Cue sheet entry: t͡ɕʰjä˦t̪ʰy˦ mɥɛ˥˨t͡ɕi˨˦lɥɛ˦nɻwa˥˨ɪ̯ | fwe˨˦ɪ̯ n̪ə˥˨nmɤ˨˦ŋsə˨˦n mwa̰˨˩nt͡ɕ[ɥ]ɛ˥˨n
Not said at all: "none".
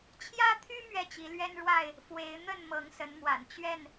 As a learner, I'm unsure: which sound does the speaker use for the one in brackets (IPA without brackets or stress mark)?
ɥ